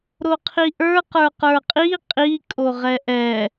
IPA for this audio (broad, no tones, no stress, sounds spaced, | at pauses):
ɾ o qʰ i ʔ ə˞ q ə˞ q ə˞ qʼ i qʼ i kʼ o ʁ ɛ ʔ ɛ